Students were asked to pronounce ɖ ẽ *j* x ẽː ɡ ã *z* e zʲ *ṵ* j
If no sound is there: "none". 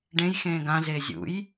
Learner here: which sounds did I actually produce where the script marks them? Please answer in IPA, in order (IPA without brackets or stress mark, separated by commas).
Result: j, z, ṵ